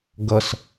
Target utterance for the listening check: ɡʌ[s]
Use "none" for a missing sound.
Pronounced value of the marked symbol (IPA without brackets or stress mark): s